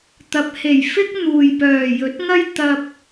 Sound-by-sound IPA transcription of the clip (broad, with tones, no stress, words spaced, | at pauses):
t̪ɐ˨˥p̚ he˨˩jfɪ˥k̚ n̪uː˨j pœː˨˩jɵ˨˥t̚ŋɐ˥j t̪ɐ˧p̚